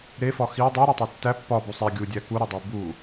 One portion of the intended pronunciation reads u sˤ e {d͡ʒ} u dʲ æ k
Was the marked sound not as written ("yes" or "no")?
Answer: yes